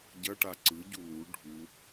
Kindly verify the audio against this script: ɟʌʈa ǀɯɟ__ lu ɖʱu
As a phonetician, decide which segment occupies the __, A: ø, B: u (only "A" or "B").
B